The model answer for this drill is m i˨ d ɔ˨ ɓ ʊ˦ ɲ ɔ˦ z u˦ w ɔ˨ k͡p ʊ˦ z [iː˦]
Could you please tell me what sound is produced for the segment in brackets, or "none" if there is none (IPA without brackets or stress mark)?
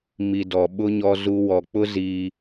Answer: iː˦